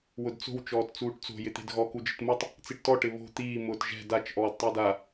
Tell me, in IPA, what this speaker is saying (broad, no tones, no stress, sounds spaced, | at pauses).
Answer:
w ʊ d t͡s o̤ w t͡ʃ ɔː t t͡s uː ʈ t͡s o̤ j ɪ t̪ e̤ d ɣ ɔ k u d͡ʒ ɪ t m u tˤ | t͡s i ʈ t ɔ ʈ ɪ β o̤ t̪ iː m ʊː t ʒ ɛ̤ d a t͡ʃ ʔ ɔː d tˤ i d a